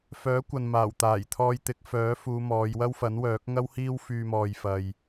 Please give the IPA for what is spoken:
fœː˨˥kʷɐ˨n maː˨˩wt̪aː˨˩jt̪ʰɔː˧jt̪ɪ˨˥k̚ fœː˨˥fuː˨˧ mɔː˨˧jwɐ˥wfɐ˨˥nwœː˨˥k̚ ŋɐ˥whiː˥w fyː˧mɔː˨jfɐ˨j

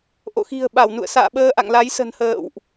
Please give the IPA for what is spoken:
ʔo̰˧˨xi̤˨˩ə̯ɓa˧˩wnṵ˧˨ə̯ sa̰ː˧˨ ɓəː˧ʔa̰˧˨ŋla˨˦jsə̤˨˩n hə̰ː˧˨wʔ

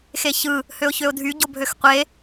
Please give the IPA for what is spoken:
xeçɯ | høʊ̯çøʊ̯dʱy ɟobʱøxqʷe

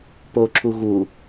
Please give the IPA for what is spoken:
poǁu ɣu

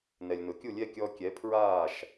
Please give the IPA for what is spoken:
nɛ˩lʲnʊ˩ kʲu˥˩lʲɛ˥˩ kʲɔ˧kʲɛ˩˥ pʰɹaː˥˩ʃ

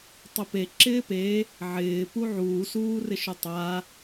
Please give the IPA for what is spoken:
tˤʊpe ǁɪːpe | ʕɪː puʕuː suːrɪʃʊtˤa

